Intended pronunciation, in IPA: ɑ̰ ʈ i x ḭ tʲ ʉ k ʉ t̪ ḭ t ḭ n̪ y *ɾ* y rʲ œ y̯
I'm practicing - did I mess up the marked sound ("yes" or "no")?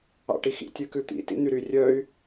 no